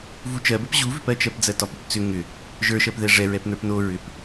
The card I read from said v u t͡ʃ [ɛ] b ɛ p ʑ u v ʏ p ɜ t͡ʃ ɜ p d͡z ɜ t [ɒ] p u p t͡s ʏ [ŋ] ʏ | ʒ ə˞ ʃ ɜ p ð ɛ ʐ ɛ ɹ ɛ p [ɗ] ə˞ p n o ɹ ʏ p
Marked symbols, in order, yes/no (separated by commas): no, yes, yes, no